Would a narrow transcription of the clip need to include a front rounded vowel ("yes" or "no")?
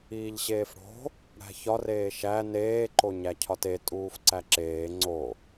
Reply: no